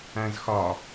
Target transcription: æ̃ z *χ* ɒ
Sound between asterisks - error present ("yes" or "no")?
yes